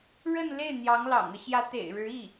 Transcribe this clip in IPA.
ɻ ə˥˧ n l e˥˩ ɪ̯ n̪ j ɑ˧˥ ŋ l ɑ̰˨˩ ŋ ɤ˦ ɕ j ä˧˥ t̪ ḛ˨˩ ɪ̯ ɻ ɻ̩˧˥ i˥˩

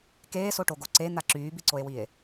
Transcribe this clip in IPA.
k eː s o ʈ o ɡ o ǀ e n̪ a ǁ yː b i ǀ o e̯ w i e̯

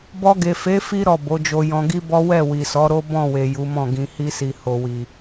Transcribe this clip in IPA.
b ɔ˧ ɡ e˨ f e˨˦ f i˦ ɾ ɔ˦˨ b o˨˦ d͡ʒ o˧ j ɔ̃˧ ɡ i˦ b ɔ˦ w ɛ˦˨ w i˨ s ɔ˨˦ ɾ o˦ b ɔ̃˦˨ w e˨ j u˨˦ m ɔ̃˦˨ ɡ ĩ˧ h i˧ s i˨ h o˨ w i˨

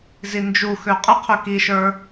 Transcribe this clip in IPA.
z i n d͡ʒ u x ø qʼ ə qʰ ø k i ʃ ə˞

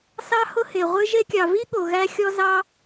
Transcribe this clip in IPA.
s ɑ˦ h ʊ˦ h e˨ ʁʷ ɨ˧ ʒ e˧ kʲ ɑ˨ v i˦ ɠ o˨ ɣ æ˦ xʲ ɔ˦ z ɑ˦

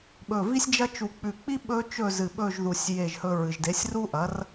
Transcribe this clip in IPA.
ɓ ɵ˧˩ v i˥ sʲ d͡ʒ ɐ˥ t͡ʃ u˧ k͡p ʉ˧˩ k͡p i˥ ɓ ɵ˥ t͡ʃ ɵ˥˧ z ɨ˧˩ ɓ ɵ˥˧ ʒ ð u˧˩ sʲ j e˥˧ ʒ h ɵ˥ ɹ ɨ˧ ʒ d e˨˥ sʲ r u˥ ʔ ɐ˨˥ r

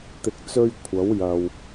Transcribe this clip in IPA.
t̪ ɪ˨ k̚ t͡s ɵ˧ ɥ kʷʰ ɐ˨˥ w j ɐ˨ w

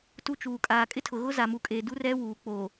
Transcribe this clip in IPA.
t u˦ t͡ʃ uː˨ kʼ aː˨ kʼ ɪ˦ tʰ ʊ˨ ɣ ʊ˦ z a˨ m u˨ kʼ eː˨ d u˦ r ɛ˦ w uː˨ k͡p oː˨

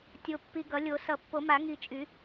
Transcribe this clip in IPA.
tʲ o˨ pː i˨ ɡ ʌ˨˩˦ lʲ o˨˩˦ s ʌ˨˩˦ pː o˨˩˦ m a˨˩˦ ŋ i˨ t͡ʃʼ y˨˩˦

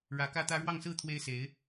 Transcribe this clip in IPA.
ɻ ä˧˥ k ä˥ t̪ ä˥ ɻ w ɑ˥˧ ŋ s ɹ̩˥˩ t̪ʰ w e˥ ɪ̯ s e˧˥ ɪ̯

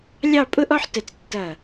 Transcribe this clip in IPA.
lʲ ɑ˥˧ pʼ ʊ˥ ʔ ɔ˥ ħ t ə˧˩ t͡s tː ʌ˧˩

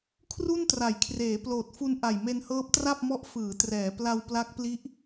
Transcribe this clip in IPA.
kʰ r u˥˩ n t r a˩˦ j kʰ r eː˩˦ p l oː˨˩ t̚ f u˧ n ʔ a˨˩ j m e˧ n h ɤː˦˥ p̚ t r a˥˩ p̚ m ɔ˦˥ ʔ f ɯː˩˦ t r ɛː˩˦ p l a˧ w p l a˦˥ k̚ p l i˦˥ ʔ

